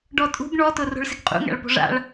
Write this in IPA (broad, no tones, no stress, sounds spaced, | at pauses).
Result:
ɖ ɔ tʼ ṳ ɡ ɳ ɔ t ʊ r o̤ ɭ s ɪ ɡ qʼ ṵ ŋ a̰ ɭ p o̤ ʐ a̰ ɭ